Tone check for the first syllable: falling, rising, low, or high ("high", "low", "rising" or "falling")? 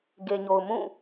low